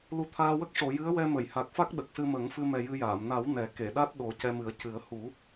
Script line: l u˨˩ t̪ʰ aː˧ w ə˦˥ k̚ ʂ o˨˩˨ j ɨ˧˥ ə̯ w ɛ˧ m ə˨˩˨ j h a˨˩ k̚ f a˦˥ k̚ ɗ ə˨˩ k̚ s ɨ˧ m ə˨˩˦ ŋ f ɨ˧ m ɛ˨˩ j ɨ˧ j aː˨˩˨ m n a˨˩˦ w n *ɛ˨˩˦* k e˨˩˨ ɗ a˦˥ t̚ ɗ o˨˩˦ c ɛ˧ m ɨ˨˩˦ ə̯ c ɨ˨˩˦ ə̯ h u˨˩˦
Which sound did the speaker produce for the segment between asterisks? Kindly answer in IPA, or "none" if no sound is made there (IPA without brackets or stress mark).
ɛ˨˩˦